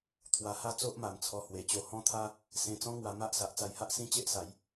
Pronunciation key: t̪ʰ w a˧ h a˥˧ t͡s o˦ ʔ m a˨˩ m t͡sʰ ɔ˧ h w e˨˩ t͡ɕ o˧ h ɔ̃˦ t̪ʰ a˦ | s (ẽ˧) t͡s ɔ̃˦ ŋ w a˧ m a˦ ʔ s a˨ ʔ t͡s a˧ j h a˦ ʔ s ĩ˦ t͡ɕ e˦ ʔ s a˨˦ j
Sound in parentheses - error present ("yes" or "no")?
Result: no